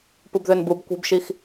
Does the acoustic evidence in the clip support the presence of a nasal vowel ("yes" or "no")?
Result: no